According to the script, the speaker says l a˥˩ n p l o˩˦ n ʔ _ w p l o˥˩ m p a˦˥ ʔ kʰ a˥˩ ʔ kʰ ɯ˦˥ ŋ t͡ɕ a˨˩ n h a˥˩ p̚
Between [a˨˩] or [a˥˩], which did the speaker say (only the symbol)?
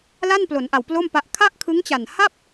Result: a˨˩